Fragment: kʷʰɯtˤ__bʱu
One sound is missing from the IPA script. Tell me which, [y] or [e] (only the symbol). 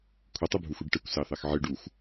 y